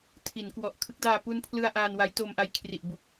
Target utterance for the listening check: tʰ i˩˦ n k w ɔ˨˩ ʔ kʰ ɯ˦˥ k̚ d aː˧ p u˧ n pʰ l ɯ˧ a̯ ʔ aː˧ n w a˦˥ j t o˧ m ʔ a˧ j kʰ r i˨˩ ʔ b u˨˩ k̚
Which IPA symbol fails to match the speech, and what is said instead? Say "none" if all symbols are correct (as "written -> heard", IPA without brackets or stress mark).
none